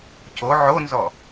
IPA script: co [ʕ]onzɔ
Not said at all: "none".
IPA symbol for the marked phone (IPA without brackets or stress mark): ʕ